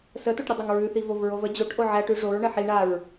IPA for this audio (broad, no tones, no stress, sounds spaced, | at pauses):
s ə t o ʈ ɾʲ ə dˤ a ŋ ɹ ʉ θ i v o v ɹ o v ə d͡ʑ o ʈ ʔ o ʕ æ ʈ ʉ ʐ o ɹ ɳ ə ħ i ɳ a ɹ